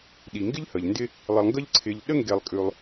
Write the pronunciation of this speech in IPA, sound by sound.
ɗ i˩ ŋ ɡ ɪ˥ ʎ h ə˩ ʎ n d ɪ˦ | lˠ ɪ˨ lˠ ŋ ɡ ə˦ ʎ ǀʰ ɪ˨ ʎ ɗ ə˥ ŋ ɡ e˨ lˠ kʼ ʉ˨ lˠ

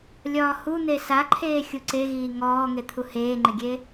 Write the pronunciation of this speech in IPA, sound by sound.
lʲ ɒː h u n̪ e s a ǃʰ eː xʲ u ǀ e ɣ iː ŋ ɔː ŋ e t̪ʰ u h eː ŋ͡ǃ ɪ ɡʲ e

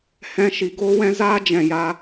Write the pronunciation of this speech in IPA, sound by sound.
h ɛ̃˦ ʃ i˧ ɡ oː˦ w ɛ̃˦ z aː˦ d͡ʒ ɛ̃˨ j a˧

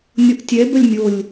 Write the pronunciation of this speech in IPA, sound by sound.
nʲ o ʔ tʲ ɛ b ə lʲ mʲ o lʲ

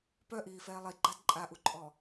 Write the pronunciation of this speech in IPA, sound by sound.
p œ ʔ iː f ɛː lˠ i ɡ͡ǃ a d ǃʼ a ʔ u ǃʼ ɔ

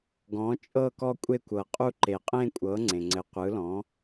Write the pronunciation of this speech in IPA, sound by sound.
ɡ ɔ̃˩˥ t͡ʃʼ ɤ˥˧ k ɔ˥˧ kʷʼ e˥˧ kʷ ɤ˩ qʼ u˥˧ ǃ e˩ qʼ ẽ˥˧ kʷʼ ɤ˩˥ ŋ͡ǀ ẽ˩ ŋ͡ǀ ɘ˩˥ qʷ ɯ˩˥ l ɔ̃˩˥

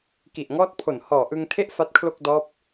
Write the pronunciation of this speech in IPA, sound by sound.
k i˨˩ ʔ ŋ ɔː˦˥ t̚ pʰ o˨˩ n h ɔː˨˩ ʔ ɯ˧ ŋ tʰ e˥˩ ʔ f a˦˥ t̚ kʰ l o˥˩ k̚ d ɔː˦˥ p̚

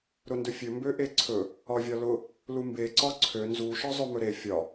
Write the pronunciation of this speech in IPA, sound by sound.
ɾ ʊ n d ɵ fʲ ɵ m b ø ʔ e ǀʰ ɵ | ɒ vʲ ɒ l ʊ | l u m b e ǀ ɒ ǀʰ ø n z u ʃ ɒ zˤ ø m ɵ ɾ e fʲ ɒ

